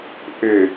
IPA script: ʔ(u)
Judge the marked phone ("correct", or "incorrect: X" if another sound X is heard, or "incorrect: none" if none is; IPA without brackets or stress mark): incorrect: ʏ